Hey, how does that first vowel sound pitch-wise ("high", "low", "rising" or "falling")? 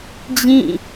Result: falling